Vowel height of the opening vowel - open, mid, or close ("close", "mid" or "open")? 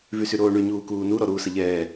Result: close